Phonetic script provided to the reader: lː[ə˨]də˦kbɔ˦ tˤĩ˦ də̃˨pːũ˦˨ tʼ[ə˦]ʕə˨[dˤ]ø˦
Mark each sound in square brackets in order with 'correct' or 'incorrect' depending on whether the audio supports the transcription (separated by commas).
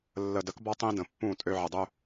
correct, incorrect, correct